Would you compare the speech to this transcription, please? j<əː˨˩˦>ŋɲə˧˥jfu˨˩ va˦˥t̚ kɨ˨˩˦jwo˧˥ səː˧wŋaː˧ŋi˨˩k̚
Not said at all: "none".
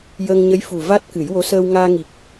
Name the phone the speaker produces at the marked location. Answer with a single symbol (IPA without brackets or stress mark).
əː˧